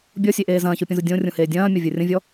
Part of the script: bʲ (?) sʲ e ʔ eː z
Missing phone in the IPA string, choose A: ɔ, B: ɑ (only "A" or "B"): A